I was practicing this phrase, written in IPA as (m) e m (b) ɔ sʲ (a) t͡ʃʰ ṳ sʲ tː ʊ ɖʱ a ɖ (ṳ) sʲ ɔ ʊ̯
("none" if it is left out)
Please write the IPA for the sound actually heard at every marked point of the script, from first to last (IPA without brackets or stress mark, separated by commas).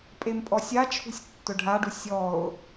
pʼ, pʼ, a, u